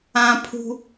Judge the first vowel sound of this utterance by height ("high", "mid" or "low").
low